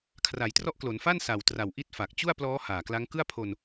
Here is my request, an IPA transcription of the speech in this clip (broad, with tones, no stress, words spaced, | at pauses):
kʰra˩˦jtrɔ˦˥ʔ klo˩˦nfa˥˩n sa˨˩wtra˨˩w ʔi˥˩t̚fa˨˩k̚ t͡ɕu˥˩a̯plɔː˦˥ haː˨˩kla˦˥ŋ kɯ˥˩a̯pʰo˧n